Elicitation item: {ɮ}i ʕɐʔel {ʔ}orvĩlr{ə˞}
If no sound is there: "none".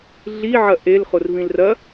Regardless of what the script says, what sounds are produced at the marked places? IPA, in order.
ɮ, χ, ɐ

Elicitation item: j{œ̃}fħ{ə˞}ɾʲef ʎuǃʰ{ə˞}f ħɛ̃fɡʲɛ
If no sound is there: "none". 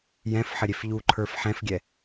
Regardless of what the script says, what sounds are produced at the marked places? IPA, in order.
ɛ̃, ə, ə˞

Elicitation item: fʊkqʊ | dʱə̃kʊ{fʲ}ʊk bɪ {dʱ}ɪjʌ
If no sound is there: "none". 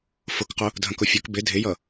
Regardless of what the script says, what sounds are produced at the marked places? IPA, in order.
fʲ, dʱ

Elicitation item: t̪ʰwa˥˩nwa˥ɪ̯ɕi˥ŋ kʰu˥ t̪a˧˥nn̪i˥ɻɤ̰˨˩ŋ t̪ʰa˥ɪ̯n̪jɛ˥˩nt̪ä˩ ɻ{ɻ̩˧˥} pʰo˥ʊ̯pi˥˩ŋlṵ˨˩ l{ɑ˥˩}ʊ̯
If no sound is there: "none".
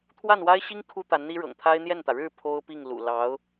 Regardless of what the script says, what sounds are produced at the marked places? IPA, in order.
ɻ̩˥˩, ɑ˧˥

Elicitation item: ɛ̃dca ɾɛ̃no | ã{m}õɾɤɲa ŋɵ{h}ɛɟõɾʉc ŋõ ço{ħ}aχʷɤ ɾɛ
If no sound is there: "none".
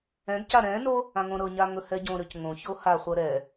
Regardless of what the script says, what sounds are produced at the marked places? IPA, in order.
ŋ, h, h

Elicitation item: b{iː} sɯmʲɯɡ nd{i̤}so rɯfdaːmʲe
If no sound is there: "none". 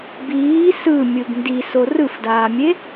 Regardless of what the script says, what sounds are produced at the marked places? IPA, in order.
iː, i

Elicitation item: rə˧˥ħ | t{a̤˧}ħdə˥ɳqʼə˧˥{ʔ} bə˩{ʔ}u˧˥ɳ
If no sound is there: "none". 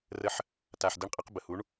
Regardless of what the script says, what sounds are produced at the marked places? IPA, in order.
a˧, q, h

